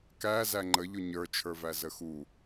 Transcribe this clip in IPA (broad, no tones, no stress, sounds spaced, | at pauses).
k æ z æ ŋ͡ǃ ə ʎ ʊ ɲ ə˞ t͡ʃʰ ə˞ v æ z ə x u